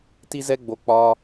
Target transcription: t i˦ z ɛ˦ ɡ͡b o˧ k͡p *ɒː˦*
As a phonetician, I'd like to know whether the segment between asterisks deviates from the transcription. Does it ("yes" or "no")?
no